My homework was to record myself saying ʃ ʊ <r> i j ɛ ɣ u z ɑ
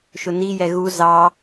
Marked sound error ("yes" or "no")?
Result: yes